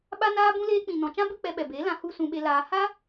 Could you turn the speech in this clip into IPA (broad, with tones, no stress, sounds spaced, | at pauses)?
ɓ a˦ n aː˦ b ũ˦ l eː˧ k͡p ĩ˨ n ɔ̃˨ t͡ʃ ã˦ b ɨ˦ k͡p ɛ˧ ɓ ɛ˨ b e˨˦ l ã˧ h u˦ s ũ˧ ɓ e˧ l aː˧ h a˦